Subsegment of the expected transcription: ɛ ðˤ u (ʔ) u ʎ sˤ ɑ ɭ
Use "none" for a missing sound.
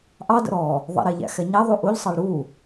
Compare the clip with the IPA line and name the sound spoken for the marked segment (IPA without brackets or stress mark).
ʔ